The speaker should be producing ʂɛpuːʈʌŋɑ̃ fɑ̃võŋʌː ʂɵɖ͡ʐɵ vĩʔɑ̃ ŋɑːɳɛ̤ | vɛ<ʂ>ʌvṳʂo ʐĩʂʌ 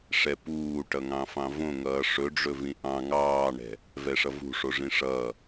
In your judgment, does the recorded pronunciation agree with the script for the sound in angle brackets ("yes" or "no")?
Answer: yes